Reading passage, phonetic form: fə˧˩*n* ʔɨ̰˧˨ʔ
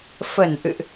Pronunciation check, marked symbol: correct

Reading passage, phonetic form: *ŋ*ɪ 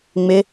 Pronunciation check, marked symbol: incorrect: ŋ͡m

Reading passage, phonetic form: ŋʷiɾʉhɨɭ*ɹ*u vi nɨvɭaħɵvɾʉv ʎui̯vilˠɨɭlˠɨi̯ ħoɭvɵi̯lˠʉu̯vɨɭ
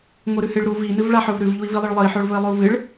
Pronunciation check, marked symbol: incorrect: ɾ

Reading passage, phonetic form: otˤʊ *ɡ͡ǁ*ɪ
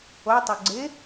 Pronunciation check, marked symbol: incorrect: ɡ͡ǀ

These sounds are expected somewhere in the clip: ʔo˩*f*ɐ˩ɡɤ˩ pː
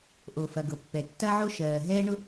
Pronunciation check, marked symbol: correct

